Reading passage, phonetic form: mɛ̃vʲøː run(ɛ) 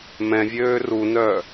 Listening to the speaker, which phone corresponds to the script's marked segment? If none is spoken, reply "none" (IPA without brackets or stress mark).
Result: œ